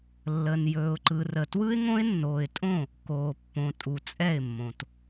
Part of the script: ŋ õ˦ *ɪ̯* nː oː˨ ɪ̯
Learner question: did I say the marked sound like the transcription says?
yes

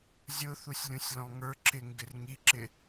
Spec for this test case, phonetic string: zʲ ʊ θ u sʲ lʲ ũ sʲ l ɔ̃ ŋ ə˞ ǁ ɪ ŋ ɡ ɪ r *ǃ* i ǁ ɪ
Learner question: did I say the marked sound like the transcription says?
no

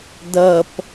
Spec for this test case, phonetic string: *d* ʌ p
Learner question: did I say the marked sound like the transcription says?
yes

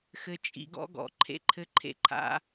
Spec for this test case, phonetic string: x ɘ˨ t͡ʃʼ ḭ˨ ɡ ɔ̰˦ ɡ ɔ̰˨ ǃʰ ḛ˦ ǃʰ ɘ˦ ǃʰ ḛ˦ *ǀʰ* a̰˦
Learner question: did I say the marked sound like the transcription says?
no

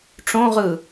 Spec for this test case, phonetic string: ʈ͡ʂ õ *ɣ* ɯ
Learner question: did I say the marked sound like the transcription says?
no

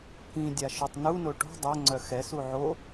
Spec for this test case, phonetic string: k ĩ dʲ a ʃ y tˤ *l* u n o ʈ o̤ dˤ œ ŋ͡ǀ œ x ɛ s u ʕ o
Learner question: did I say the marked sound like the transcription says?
no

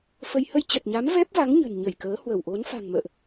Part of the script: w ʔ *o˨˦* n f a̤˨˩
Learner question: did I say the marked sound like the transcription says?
yes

